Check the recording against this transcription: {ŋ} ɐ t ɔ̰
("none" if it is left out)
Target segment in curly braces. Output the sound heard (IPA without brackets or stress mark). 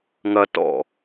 ŋ